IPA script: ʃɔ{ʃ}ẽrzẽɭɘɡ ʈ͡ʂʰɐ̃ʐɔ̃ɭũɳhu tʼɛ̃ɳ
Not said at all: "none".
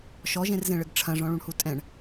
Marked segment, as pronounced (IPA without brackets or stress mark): ʒ